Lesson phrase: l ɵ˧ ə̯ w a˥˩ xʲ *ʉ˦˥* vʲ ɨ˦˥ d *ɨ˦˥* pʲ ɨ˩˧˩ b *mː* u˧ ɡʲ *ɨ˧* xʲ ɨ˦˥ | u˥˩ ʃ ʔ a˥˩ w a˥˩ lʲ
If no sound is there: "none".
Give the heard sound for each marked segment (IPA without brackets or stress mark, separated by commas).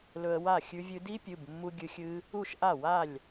ʉ˦˥, i˦˥, mː, ɨ˧